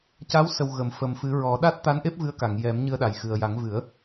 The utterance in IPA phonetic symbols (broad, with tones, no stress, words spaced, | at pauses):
ca˧˥w sə˨˩w ɣə˨˩˨m fə˨˩m fɨ˨˩˦ɹɔ˨˩˦ ɗa˦˥t̚t̪a˧˥nʔe˦˥p̚ vɨ˧˥ə̯ka˨˩˨ŋjɛ˨˩˦m ɲɨ˧ə̯ɗa˨˩jxɨ˨˩ə̯ja˨˩˦ŋ vɨ˨˩˦ə̯